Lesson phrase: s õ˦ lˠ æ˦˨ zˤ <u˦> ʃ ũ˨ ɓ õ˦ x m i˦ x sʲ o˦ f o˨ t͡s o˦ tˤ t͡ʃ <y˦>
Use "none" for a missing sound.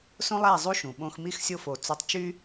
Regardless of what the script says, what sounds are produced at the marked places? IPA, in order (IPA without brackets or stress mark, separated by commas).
u˦, y˦